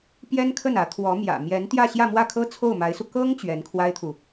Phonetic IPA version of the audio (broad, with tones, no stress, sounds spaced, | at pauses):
p j ɛ˥ n kʰ ə˥˩ n ä˧˥ t̪ʰ w ɔ˧˥ m j ä̰˨˩ m j ɛ˧˥ n t̪ j ä˥˧ ɕ j ä˥˧ m w ä˥˩ kʰ ɤ˥ t͡sʰ o˥˩ ʊ̯ m a˧˥ ɪ̯ s u˧ k ɤ˥ ŋ t͡ɕ ɥ ɛ˧˥ n kʰ w a˥ ɪ̯ t̪ʰ u˨